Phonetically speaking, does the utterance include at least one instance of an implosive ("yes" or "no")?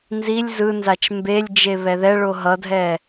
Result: no